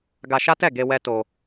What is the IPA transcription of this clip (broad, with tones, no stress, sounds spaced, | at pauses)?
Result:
ɡ a˧ ʃ a˦ t ɛ˦˨ ɡ e˧ w ɛ˧ t o˧